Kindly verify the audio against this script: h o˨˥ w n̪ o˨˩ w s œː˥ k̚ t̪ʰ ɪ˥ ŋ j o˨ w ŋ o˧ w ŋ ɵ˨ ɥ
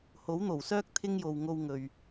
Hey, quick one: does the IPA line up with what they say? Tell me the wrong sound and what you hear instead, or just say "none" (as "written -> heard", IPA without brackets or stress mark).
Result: none